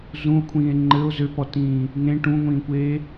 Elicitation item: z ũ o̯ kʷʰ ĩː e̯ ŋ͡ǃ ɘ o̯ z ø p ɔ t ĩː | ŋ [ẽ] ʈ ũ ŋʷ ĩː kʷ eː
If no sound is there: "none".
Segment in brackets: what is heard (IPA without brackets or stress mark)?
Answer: ẽ